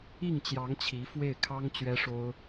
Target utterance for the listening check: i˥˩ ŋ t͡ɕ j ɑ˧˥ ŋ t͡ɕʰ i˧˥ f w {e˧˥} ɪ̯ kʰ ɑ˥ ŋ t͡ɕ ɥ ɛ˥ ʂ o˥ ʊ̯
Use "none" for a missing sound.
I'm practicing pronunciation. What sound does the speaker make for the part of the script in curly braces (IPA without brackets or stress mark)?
e˥˩